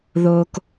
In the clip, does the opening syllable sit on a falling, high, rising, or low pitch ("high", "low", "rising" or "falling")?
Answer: low